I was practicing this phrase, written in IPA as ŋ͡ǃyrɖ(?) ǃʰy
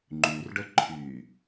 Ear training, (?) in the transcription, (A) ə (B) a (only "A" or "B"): A